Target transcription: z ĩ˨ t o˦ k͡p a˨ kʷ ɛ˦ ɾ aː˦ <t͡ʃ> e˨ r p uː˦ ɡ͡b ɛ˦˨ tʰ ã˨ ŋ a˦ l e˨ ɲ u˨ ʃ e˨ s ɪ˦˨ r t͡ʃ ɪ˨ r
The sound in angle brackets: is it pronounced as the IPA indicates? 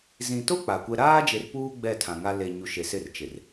no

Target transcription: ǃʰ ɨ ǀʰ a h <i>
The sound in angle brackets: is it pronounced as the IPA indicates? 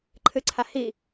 yes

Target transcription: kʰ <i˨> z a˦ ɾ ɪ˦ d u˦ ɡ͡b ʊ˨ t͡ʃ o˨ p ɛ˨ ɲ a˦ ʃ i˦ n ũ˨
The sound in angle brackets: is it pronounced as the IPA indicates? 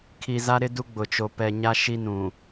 yes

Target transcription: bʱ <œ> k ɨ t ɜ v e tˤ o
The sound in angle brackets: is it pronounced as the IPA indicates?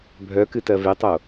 yes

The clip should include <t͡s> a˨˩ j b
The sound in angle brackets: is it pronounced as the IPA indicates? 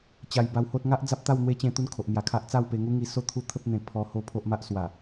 no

